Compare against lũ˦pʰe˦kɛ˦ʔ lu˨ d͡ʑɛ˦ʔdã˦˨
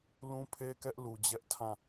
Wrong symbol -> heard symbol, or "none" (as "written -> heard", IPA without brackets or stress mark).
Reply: d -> tʰ